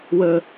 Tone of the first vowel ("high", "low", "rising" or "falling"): low